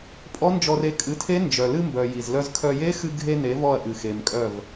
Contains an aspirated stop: yes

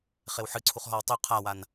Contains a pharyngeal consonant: yes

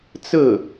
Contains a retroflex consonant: no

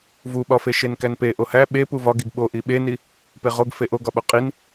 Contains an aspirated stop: no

